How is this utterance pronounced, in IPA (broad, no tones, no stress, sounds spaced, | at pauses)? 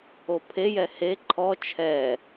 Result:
o pʰ e j ɛ h e ǃʰ ɔ t͡ʃʰ ɛ